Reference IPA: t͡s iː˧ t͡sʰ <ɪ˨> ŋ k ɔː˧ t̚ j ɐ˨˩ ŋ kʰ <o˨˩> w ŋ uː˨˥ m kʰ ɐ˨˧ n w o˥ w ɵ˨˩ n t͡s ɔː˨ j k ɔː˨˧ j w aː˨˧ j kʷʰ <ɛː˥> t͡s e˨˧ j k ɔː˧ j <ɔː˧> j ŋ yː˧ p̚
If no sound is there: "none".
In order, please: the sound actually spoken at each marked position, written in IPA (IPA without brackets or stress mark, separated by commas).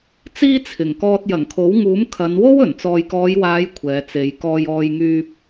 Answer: ɪ˨˩, o˨˥, ɛː˨˧, ɔː˧